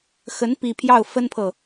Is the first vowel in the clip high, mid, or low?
mid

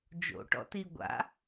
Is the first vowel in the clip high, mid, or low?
mid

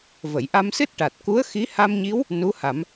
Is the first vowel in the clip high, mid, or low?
mid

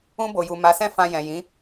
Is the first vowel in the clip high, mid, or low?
high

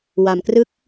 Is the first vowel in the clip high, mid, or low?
low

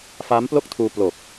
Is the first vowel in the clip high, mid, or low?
low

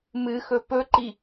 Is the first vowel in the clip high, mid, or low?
high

